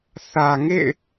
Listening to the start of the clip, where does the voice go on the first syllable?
low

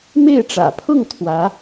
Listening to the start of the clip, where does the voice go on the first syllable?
falling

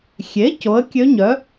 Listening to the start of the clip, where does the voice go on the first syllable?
rising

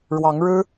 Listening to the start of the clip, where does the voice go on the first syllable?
rising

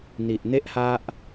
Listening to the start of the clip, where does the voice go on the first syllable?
low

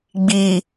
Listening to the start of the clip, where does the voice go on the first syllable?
low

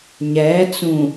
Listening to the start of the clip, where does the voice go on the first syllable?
rising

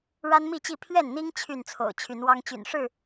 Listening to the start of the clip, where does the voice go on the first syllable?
high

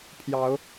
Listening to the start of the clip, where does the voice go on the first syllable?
rising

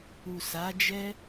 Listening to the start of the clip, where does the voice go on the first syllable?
low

